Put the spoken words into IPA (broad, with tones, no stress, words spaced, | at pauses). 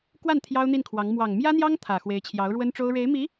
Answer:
kwa˥˩n t̪ʰjɑ˥ʊ̯n̪i˥˩nkʰwɑ˧˥ŋ mwɑ˨˩ŋmjä˥n̪jɑ˥ŋ t̪ʰä˨˩ xwe˧˥ɪ̯t͡ɕʰjɑ˧˥ʊ̯ɻwə˥nʈ͡ʂo˥ʊ̯ ɻe˧˥ɪ̯mi˧˥